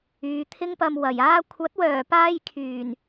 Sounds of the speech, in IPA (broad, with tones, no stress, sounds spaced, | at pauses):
yː˨˧ t̪ʰ ɪ˥ ŋ p ɐ˧ m w ɐ˨˩ j aː˥ kʷʰ ɐ˨˥ t̚ w œː˨˩ p aː˧ j kʰ yː˨˩ n